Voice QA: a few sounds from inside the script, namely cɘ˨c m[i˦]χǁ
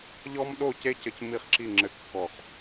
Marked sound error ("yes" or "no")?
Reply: no